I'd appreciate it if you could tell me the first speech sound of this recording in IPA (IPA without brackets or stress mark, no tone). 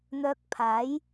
n̪